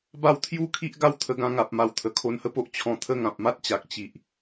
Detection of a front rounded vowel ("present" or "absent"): absent